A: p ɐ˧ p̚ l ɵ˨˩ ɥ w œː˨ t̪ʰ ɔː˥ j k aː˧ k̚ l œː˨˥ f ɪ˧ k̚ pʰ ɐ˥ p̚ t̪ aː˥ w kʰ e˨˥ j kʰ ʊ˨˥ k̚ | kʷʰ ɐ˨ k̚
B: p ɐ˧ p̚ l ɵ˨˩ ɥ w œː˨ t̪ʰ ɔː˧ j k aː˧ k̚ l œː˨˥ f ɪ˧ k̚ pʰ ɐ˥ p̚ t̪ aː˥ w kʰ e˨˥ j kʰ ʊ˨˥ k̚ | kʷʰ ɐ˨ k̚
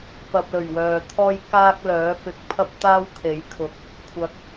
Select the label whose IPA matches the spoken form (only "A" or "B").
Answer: B